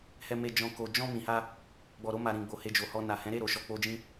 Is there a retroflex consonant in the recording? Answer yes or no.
no